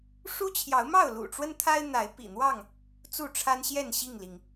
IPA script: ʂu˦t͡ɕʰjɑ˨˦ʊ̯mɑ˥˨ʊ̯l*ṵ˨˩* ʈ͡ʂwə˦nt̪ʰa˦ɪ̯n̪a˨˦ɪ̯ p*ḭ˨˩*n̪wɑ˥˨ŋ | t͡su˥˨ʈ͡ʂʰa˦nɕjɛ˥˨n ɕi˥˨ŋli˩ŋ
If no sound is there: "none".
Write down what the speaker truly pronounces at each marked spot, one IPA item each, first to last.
ṵ˨˩, ḭ˨˩

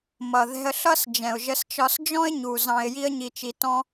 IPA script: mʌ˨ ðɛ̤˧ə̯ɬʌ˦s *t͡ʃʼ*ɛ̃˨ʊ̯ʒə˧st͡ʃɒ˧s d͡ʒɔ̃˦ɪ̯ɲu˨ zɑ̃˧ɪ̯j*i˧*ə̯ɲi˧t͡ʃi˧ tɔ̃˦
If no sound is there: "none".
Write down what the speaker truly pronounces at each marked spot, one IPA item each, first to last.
d͡ʒ, i˦

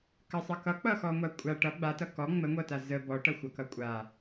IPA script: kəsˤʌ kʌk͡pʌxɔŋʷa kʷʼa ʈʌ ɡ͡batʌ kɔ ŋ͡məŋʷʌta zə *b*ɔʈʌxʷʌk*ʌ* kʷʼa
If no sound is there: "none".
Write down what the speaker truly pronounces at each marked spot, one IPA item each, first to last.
b, ʌ

